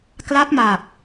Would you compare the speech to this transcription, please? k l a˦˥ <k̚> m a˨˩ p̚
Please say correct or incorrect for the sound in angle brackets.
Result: incorrect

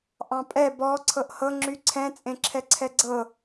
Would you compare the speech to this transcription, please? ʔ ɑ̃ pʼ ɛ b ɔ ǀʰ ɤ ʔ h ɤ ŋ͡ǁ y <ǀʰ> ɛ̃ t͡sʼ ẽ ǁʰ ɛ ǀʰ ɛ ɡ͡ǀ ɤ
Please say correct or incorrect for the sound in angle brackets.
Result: correct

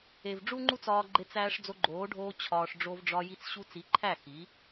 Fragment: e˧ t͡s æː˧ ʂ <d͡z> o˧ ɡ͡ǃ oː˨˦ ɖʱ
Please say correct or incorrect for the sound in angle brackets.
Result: correct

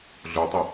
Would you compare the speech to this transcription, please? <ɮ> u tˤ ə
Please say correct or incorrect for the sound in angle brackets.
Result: correct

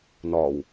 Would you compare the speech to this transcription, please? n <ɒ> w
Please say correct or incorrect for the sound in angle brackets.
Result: incorrect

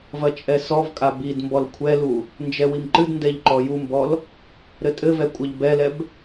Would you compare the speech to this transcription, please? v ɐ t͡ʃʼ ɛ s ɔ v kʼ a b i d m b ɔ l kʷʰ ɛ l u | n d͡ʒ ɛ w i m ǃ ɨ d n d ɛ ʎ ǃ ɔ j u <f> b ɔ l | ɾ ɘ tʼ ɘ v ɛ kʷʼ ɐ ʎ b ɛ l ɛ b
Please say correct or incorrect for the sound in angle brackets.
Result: incorrect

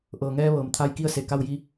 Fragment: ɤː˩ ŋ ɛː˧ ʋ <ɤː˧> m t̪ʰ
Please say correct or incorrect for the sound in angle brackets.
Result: incorrect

